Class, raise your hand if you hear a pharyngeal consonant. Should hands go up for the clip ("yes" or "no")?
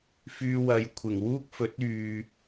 no